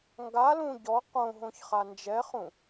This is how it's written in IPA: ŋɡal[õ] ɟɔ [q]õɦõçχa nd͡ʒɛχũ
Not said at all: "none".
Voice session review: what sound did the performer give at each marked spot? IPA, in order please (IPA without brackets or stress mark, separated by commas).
ũ, q